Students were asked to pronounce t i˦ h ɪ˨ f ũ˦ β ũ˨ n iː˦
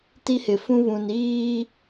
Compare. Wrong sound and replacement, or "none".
none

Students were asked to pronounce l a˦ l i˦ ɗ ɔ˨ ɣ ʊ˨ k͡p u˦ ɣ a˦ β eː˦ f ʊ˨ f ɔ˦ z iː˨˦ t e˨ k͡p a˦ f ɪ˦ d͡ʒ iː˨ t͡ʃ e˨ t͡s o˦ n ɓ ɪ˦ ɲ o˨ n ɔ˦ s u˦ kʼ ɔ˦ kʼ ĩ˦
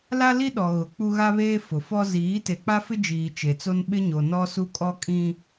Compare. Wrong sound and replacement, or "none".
none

